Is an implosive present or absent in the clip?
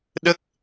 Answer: present